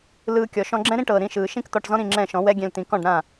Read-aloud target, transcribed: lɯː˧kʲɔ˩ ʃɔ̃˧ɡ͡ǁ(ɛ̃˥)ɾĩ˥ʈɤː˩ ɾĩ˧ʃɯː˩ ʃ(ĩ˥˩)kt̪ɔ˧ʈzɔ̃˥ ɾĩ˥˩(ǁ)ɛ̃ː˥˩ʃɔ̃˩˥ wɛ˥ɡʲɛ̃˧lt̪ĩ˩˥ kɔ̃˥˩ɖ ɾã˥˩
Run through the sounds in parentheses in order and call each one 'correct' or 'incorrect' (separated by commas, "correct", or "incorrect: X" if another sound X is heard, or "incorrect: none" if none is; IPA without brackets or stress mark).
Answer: correct, incorrect: ĩ˥, incorrect: ŋ͡ǁ